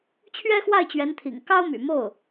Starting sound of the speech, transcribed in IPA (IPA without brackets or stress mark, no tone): t͡ɕʰ